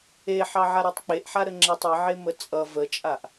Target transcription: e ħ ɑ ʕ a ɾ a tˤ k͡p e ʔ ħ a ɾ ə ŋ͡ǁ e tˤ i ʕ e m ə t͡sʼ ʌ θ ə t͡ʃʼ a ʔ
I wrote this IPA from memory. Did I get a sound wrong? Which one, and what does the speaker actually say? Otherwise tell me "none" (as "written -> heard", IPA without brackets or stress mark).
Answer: θ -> v